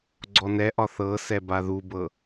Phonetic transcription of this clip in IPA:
ɡ͡ǀɔnɛʔɒ θɤsɛba ðubɤ

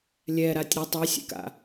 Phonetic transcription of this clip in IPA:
lʲɛɾatʲ ɾɪ tˤisʲḛka̰

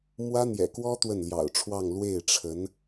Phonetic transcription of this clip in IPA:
mwä˥n̪jɛ̰˨˩ kwɔ˥ t̪wə˥˩nljɑ̰˨˩ʊ̯ʈ͡ʂʰwɑ˥˧ŋ lwe˥˩ɪ̯ʈ͡ʂʰə˧˥n

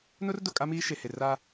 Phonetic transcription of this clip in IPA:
nʊ˦rdʊ˨ kʼa˦miː˦ʃe˨he˨ ra˦

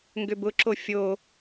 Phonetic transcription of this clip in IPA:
ŋɡʏbʊǁo fʲo

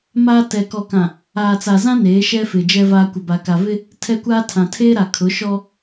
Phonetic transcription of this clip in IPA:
maː˦ tɛ˨kɔ˨kã˨ | aː˨t͡sa˨zã˦ neː˨˦ʃɛ˦fɪ˨ d͡ʒɛ˦vaː˦ kʷɪ˨ba˨ka˨vɪ˦ | tʰɛ˦kʷaː˦tʰã˨ tʰeː˦ɾa˨kʰʊ˨˦ʃɔ˦

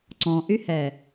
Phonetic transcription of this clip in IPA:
ǀɔ̃ʔyhɛː

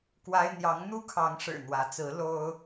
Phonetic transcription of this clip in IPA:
kwa˦ɪ̯ n̪jɑ˨˦ŋn̪u˦ kʰɑ˨˦ŋʂɻ̩˨˩ n̪wä˨˦ t͡sɹ̩˨˦ lo˦ʊ̯

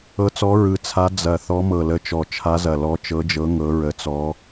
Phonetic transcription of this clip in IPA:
ɤ˧˥t͡sɔ˧˥ɹɯ˧˩ t͡sʰa˧˥ d͡zɐ˧˩ θɔ˧˥mɤ˧˩lə˧˥t͡ʃɔ˧˩ t͡ʃʰa˧˥zɐ˧˩ lɔ˧˥t͡ʃɤ˧˥d͡ʒɤ˧˥ ŋɤ˧˥ɹə˧˥t͡sɔ˧˥

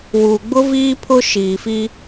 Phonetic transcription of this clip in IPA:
wu˨ɡ͡bʊ˦ viː˦pʰʊ˦ ʃiː˨fi˦

